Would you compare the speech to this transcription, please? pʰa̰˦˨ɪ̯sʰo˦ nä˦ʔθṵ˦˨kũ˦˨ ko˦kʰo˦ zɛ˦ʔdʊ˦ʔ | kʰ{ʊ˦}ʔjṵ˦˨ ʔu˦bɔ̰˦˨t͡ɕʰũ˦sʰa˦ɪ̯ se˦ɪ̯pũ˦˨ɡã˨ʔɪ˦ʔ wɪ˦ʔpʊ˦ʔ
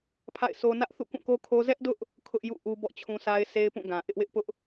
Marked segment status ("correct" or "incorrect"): correct